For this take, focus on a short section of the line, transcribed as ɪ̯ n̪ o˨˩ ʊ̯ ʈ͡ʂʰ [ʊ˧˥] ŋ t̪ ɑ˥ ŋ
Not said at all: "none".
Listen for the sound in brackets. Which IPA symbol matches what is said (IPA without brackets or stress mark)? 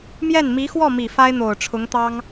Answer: ʊ˧˥